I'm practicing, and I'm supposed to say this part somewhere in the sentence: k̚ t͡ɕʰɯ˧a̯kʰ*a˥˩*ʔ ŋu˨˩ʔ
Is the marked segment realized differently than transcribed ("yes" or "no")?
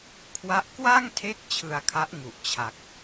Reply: yes